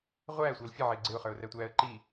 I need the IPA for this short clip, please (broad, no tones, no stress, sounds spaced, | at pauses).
ʁʷ æː sʷ ʌː l fʲ ə ʕ ɪː ɡ͡ǀ ɪ ʊ̯ χ ə˞ ʊ̯ r æ tʷ æː ə̯ ǃ i